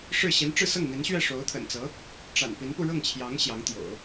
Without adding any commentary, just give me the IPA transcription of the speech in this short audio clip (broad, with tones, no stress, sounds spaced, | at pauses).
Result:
ʂ ɻ̩˥˩ ɕ i˧˥ n ʈ͡ʂ ɻ̩˥˧ s ɤ˥˩ ŋ n̪ i˧˥ n ɕ ɥ ɛ˥˩ ʂ o˧˥ ʊ̯ t̪ʰ ə̰˨˩ n t͡s ɤ˧˥ | ʈ͡ʂ a̰˨˩ n p i˧˥ n p u˧ ɻ ɤ˥˩ ŋ t͡ɕʰ j ɑ˧˥ ŋ ɕ j ɑ˧˥ ŋ t̪ j o̰˨˩˦ ʊ̯